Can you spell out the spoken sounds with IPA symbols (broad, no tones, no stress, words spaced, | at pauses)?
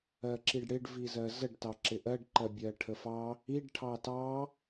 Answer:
ɜǁiɖɽɪɖ vizɜzəɖ tɑǁɪʔɜɖ ǃɜbʲɜʈʰəfɑ | iɖ ʈʰɑtɑ